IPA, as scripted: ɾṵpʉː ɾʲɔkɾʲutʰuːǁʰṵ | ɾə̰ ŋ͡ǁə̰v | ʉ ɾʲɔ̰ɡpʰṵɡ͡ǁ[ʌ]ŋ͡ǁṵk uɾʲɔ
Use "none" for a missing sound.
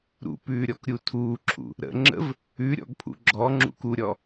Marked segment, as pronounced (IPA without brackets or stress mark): ɔ